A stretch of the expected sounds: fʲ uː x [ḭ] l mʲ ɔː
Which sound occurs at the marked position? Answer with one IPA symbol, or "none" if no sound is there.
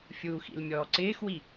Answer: ḭ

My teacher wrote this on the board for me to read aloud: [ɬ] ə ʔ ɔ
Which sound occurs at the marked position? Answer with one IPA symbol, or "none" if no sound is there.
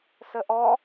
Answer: s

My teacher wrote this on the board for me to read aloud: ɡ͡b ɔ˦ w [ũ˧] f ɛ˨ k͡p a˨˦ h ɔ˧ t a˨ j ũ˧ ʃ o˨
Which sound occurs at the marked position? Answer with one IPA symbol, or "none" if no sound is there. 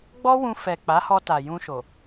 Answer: ũ˧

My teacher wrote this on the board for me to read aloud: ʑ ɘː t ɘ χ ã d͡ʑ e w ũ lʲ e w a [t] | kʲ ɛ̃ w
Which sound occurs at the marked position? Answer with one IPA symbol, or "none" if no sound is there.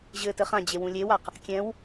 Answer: q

